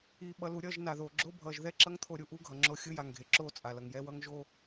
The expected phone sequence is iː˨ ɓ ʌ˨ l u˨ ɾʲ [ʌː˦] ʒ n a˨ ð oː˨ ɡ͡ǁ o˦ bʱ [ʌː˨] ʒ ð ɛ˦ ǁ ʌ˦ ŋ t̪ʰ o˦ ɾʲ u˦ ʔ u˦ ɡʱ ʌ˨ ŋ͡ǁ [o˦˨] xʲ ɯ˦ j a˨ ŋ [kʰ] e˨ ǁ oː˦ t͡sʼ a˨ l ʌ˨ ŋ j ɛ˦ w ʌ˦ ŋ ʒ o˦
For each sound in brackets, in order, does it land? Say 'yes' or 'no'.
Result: no, yes, yes, no

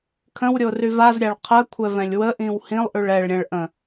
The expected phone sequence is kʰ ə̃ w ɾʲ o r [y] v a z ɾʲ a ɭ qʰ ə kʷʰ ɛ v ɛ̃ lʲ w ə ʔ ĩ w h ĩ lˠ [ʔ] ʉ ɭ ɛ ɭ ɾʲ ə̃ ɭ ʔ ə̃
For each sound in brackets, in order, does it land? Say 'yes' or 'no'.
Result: yes, yes

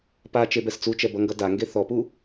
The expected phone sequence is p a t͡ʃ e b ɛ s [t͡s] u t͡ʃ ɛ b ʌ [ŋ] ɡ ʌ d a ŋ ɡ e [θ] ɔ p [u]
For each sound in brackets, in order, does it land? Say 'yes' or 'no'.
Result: yes, yes, yes, yes

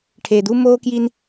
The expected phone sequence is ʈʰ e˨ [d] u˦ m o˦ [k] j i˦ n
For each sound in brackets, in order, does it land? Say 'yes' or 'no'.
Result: yes, yes

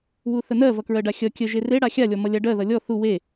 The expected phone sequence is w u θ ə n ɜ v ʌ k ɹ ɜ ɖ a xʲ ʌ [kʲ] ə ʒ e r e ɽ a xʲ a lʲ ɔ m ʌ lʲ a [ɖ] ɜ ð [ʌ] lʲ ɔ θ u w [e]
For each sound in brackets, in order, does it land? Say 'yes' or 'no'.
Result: yes, yes, yes, yes

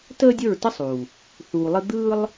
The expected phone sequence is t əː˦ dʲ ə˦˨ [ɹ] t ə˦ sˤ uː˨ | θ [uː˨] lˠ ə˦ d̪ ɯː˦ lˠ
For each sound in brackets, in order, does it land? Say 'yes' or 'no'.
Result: yes, yes

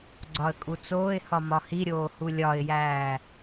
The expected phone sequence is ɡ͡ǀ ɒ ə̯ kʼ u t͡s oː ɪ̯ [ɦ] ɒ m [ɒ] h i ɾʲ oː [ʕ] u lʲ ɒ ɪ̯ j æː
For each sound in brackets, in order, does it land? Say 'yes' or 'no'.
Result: no, yes, no

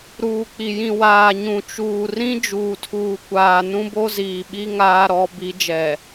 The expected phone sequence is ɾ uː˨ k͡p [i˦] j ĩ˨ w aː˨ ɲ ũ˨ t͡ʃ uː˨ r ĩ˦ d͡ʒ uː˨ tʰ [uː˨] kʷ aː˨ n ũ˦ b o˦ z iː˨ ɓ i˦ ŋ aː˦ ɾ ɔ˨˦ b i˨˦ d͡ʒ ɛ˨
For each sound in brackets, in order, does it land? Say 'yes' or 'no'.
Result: no, yes

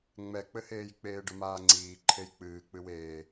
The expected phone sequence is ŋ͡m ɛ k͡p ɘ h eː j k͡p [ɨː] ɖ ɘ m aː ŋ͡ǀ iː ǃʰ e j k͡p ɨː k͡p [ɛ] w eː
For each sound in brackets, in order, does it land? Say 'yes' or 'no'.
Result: no, no

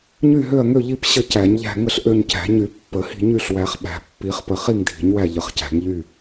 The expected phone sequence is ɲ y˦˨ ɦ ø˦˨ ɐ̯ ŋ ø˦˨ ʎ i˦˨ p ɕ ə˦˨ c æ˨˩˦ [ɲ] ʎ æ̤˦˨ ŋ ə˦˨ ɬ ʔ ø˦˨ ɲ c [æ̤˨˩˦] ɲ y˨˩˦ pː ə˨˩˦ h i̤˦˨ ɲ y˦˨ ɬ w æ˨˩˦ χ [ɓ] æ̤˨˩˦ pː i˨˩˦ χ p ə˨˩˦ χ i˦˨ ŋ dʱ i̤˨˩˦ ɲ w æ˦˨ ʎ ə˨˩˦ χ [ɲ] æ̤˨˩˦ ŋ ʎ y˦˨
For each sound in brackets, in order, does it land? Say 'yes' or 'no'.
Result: yes, yes, yes, no

